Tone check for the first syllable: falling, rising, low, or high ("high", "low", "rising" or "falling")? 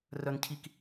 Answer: high